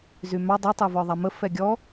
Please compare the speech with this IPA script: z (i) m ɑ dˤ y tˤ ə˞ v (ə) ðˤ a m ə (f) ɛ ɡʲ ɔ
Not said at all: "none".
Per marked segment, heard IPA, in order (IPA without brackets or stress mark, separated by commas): y, ɔ, f